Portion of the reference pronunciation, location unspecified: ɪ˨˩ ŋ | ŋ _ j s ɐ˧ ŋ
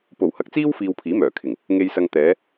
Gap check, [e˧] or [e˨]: e˧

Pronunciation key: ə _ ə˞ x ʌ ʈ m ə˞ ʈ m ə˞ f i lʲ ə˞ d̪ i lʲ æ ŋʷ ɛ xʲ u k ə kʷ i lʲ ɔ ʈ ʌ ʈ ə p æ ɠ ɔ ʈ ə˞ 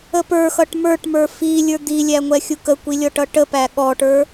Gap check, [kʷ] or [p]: p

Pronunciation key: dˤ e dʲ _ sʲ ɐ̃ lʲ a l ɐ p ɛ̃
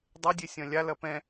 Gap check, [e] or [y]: e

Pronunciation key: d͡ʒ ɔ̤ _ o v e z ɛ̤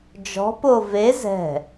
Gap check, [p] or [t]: p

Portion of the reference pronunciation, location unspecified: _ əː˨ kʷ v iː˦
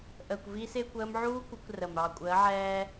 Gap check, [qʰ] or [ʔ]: ʔ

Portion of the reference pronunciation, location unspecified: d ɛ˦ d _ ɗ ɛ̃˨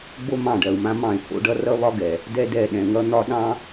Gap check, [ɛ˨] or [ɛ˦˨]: ɛ˦˨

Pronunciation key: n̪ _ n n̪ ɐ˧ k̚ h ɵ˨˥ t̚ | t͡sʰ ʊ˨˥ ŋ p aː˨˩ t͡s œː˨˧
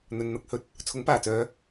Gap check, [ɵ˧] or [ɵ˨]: ɵ˨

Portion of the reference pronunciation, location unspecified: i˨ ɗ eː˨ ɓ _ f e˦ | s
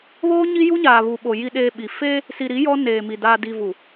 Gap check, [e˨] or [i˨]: i˨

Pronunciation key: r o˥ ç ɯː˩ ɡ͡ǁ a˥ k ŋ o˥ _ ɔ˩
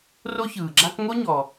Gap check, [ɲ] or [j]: ɲ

